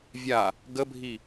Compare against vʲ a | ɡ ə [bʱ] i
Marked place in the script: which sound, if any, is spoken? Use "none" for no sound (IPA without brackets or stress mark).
bʱ